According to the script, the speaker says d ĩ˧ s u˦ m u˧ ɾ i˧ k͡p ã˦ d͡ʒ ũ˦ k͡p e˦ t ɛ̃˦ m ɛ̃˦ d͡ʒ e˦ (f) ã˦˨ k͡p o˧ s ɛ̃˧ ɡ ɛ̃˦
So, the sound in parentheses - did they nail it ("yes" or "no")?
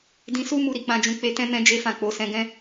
yes